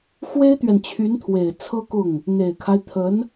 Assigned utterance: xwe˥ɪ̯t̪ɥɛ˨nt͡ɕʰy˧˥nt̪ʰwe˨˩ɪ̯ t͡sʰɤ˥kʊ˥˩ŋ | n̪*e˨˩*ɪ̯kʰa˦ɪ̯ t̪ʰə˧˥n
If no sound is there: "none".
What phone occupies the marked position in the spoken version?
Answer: e˨˩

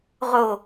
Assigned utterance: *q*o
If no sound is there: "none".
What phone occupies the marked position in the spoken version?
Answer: ʁ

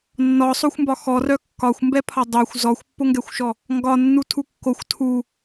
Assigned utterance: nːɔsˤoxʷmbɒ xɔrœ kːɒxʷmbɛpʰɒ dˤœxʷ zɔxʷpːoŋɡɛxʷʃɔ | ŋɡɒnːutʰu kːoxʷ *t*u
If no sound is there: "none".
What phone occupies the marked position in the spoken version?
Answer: tʰ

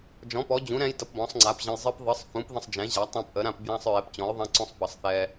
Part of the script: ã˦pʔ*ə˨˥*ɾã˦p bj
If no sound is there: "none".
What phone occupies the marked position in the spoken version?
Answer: ə˨˥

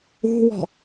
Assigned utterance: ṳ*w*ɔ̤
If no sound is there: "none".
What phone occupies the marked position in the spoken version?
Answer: w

